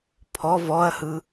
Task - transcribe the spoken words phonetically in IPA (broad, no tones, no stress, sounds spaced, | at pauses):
pʰ ɔ v ɔ ɐ̯ h ɯ